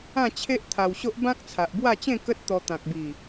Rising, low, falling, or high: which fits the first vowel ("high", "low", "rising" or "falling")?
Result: falling